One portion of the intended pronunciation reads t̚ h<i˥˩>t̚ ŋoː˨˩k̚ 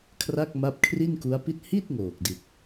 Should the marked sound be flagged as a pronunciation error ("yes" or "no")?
no